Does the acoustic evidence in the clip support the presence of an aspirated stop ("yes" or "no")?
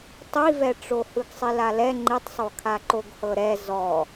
yes